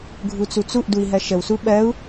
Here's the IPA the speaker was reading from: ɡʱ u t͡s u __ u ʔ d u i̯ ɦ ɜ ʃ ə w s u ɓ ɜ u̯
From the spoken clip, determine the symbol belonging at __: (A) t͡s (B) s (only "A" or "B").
A